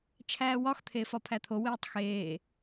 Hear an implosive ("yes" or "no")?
no